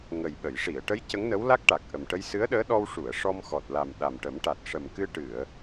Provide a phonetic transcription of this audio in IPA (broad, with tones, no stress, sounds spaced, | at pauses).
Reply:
ŋ ə˨˩ j ɓ ə˨˩˨ j ʂ i˨˩˨ ə̯ ʈ ə˧˥ j c ə˧˥ ŋ n ə˧˥ w l a˦˥ k̚ ʈ a˨˩ k̚ ʔ ə˨˩ m ʈ ə˧ j s ɨ˧˥ ə̯ ɗ əː˧˥ ɗ ɔ˧ w ʂ u˨˩˨ ə̯ ʂ ɔ˧ m x ɔ˨˩ t̚ l a˨˩ m ɗ a˨˩ m ʈ ə˨˩˦ m ʈ a˨˩ t̚ ʂ ə˨˩ m k ɨ˧ ʈ ɨ˨˩˨ ə̯